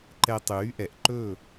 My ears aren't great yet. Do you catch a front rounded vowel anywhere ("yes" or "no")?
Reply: yes